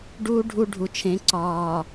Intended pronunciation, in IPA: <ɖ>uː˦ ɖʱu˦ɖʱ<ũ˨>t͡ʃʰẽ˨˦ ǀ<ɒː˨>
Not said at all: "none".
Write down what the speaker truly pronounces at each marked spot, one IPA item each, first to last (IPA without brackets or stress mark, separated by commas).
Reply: ɖ, u˨, ɒː˨